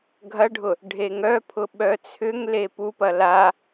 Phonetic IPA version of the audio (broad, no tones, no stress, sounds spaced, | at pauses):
ɡʱ ɐ ɖʱ ʊ | ɖʱ e ŋ œ pʰ ʊ ɓ œ t͡sʰ ʏ ŋ l e p u p ɐ l a